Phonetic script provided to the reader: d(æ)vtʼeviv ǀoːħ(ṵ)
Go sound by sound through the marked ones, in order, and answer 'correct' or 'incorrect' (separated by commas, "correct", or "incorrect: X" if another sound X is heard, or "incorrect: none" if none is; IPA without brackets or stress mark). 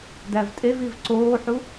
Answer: correct, incorrect: u